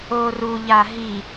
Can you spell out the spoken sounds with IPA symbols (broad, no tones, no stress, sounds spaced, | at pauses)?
o r u ʎ a ɦ i